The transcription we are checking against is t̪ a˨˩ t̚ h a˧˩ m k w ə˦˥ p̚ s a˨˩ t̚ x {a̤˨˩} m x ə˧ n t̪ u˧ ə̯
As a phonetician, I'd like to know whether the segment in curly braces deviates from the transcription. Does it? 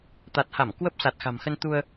no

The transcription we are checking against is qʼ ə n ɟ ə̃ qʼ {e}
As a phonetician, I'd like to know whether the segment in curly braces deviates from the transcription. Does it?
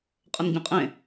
yes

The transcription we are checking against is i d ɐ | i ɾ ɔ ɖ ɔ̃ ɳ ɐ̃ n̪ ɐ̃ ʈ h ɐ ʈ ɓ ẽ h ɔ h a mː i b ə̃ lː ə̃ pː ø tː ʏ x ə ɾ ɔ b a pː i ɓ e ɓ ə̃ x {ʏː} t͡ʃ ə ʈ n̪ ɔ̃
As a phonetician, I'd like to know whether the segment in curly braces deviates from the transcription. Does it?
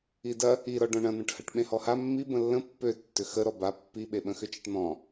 yes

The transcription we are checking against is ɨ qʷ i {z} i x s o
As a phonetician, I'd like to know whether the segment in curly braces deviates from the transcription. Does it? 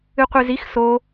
no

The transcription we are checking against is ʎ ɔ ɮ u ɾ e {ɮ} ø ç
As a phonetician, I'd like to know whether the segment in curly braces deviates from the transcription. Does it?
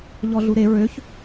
yes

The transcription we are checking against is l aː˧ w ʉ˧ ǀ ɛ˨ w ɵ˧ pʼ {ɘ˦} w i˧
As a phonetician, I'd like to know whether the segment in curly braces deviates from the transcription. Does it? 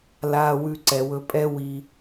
yes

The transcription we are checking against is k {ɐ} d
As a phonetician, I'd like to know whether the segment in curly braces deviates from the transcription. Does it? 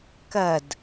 no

